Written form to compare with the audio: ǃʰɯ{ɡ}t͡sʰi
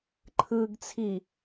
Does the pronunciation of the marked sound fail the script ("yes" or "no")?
no